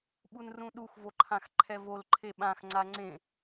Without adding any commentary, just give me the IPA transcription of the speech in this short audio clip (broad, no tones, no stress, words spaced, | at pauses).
ɓunrũɗux voǃʰãxǃʰɛvol ǃʰeɓãx ŋ͡ǀaŋ͡ǀẽ